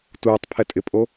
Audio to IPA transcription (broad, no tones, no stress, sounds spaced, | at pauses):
t uː tˤ pʰ ɛ tʼ ɪ pʼ o